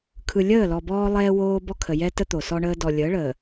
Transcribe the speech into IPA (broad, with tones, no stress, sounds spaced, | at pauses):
kʰ ɯ˨ lʲ əː˦˨ l ɔ˨ b ɔː˦ lˠ ɛː˦ w oː˦ b ɔ˦ kʰ ə˨ j ɛ˦ t ə˦ t̪ o˨ s ɔ˦ ɳ əː˦ d ɔ˨ lʲ əː˨˦ ɭ əː˨